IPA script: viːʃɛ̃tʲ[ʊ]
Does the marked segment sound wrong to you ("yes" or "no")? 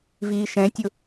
no